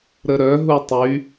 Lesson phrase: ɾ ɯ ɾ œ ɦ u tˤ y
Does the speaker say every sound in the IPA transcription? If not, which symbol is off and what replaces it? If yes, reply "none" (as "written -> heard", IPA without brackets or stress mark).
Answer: ɯ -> ə